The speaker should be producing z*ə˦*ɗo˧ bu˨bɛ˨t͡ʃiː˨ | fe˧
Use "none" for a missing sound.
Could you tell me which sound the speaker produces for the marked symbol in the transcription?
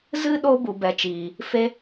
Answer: ɨ˦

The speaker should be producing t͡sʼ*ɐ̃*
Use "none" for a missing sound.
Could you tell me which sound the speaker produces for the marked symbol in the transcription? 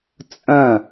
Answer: ɐ̃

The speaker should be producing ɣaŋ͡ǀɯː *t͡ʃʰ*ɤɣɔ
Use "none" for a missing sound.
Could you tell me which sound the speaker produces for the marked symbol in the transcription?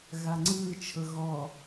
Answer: t͡ʃʰ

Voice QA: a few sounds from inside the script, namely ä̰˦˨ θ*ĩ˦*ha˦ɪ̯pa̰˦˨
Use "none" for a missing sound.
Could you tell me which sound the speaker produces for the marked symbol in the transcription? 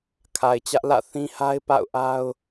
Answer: ĩ˦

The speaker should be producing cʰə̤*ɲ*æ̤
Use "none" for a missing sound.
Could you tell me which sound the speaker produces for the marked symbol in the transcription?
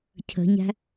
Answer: ɲ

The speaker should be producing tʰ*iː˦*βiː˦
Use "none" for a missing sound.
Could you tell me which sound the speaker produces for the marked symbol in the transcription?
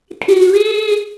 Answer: iː˨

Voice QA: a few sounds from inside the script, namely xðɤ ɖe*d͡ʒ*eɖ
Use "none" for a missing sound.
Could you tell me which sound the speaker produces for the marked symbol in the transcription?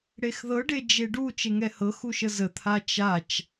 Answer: d͡ʒ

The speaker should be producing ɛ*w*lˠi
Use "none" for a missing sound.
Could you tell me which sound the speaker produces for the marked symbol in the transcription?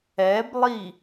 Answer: b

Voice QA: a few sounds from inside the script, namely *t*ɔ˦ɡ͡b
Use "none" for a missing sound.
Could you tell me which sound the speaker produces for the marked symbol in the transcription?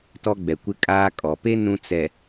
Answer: t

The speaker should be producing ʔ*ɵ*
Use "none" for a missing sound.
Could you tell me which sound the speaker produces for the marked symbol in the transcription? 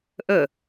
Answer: ɵ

